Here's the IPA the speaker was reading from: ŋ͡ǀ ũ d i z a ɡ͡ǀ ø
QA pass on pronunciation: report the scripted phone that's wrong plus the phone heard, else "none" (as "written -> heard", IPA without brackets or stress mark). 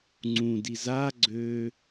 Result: none